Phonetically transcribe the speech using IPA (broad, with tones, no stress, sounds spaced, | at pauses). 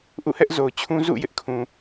ʔ ṵ˦˨ h ɛ˦ ʔ z o˨ ʊ̯ t͡ɕʰ ũ˦ z ṵ˦˨ j ɪ˦ ʔ kʰ ũ˨